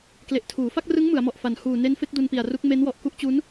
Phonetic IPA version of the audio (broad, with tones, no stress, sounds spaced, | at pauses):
k l e˨˩ ʔ tʰ uː˩˦ f a˥˩ k̚ r ɯ˦˥ ŋ m ɯ˩˦ a̯ m ɔ˨˩ ʔ f a˨˩ n h uː˨˩ n e˦˥ n f e˦˥ k̚ d u˧ n p i˨˩ a̯ r u˦˥ k̚ m e˦˥ n w ɔ˨˩ ʔ k u˥˩ ʔ t͡ɕ u˦˥ n